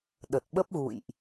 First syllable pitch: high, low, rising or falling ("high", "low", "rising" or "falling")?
low